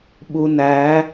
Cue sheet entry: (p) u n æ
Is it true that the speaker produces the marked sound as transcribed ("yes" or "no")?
no